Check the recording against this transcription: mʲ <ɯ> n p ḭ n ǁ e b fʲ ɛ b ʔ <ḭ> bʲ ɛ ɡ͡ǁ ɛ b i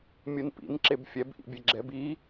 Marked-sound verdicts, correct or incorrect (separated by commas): correct, correct